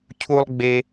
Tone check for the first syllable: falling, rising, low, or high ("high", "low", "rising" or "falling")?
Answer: high